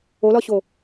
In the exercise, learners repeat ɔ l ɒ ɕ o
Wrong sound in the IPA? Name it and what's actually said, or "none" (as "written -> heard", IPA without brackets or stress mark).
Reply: ɔ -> o